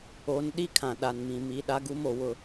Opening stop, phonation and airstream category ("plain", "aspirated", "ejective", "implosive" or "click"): implosive